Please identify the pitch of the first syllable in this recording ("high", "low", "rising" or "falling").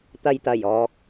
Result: low